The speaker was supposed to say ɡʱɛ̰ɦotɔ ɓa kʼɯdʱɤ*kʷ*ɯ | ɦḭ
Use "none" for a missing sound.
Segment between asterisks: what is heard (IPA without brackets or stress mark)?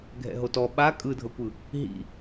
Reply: kʷ